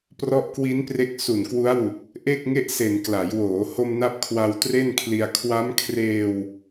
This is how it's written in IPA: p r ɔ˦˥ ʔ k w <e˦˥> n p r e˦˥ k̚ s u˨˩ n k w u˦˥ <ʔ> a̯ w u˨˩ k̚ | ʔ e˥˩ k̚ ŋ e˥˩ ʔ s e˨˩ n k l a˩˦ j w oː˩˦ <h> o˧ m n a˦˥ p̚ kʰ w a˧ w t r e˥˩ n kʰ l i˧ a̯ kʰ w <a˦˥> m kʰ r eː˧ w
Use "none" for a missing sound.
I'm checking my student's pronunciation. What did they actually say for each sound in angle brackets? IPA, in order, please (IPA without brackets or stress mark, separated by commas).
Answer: i˦˥, none, h, a˦˥